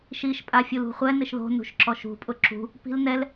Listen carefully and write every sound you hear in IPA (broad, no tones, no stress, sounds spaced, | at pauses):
ʃ i ʃ pʼ a fʲ u l ṳ χʷ ɛ n ɪ ʃ ð o̤ n ṳ ʃ ǁ ɔ ʃ ṳ pʼ ʊ ǁ ṳ | p i̤ l n ɛ l